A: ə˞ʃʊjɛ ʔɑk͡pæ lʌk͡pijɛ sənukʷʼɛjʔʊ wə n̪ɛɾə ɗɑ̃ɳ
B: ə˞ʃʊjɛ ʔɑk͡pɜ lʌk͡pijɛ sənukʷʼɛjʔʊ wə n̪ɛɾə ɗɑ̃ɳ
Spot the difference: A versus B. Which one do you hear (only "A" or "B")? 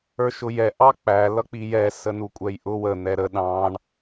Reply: A